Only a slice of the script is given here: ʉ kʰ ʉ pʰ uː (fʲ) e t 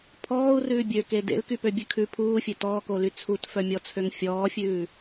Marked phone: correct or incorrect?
correct